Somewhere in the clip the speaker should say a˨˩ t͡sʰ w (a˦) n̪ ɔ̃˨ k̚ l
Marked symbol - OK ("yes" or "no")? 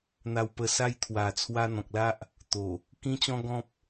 no